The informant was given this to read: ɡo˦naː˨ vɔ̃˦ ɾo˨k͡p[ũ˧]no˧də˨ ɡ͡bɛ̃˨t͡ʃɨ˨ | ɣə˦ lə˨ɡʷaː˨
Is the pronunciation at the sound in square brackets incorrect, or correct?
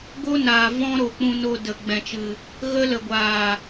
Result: correct